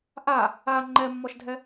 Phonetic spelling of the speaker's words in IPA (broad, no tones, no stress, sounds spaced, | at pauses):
ʔ a | a ŋ͡ǃ ɛ mː ɔ ʃ dʱ ɛ